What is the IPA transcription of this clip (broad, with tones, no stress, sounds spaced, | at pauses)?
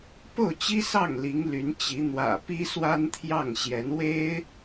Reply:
p o˥˩ ʊ̯ t͡ɕ i˥ s ɑ˥˩ ŋ l i˧˥ ŋ l y˧˥ n t͡ɕ i˧˥ n̪ w ä̰˨˩ p i˥ s w a˥ n t̪ʰ j ɑ˥˩ ŋ ɕ j ɛ˧˥ n w e˥ ɪ̯